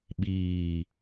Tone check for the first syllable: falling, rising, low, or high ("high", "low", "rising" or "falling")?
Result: low